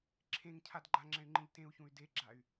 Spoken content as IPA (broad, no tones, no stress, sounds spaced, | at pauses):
ǁʰ ẽ ŋ cʰ a d ɡ͡ǃ a ŋ͡ǁ ɛ̃ y̯ ŋ͡ǃ ĩ ʎ t ẽ u̯ ç ũ y̯ d e ɡ͡ǁ a y̯